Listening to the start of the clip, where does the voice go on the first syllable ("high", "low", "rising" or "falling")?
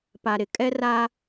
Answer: low